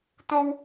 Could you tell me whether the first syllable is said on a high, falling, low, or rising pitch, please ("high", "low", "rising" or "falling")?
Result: high